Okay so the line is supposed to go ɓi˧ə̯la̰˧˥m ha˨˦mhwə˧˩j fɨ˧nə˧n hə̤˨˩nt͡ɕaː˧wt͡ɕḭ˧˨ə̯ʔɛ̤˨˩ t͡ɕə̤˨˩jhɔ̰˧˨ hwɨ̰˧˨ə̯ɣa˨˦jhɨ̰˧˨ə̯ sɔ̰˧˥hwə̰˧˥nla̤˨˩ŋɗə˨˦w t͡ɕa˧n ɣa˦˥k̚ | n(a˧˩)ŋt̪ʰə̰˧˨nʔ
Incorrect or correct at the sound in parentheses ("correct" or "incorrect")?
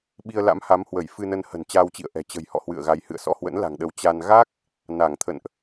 correct